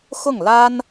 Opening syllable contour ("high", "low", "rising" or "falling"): falling